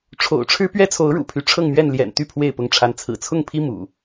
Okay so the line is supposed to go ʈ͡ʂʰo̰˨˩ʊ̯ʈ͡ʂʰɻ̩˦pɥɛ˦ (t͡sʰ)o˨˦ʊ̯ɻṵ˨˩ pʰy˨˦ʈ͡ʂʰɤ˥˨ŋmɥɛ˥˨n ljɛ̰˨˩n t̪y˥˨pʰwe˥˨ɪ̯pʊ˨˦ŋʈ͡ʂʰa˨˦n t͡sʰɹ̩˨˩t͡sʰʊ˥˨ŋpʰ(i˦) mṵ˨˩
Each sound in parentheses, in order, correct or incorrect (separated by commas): correct, correct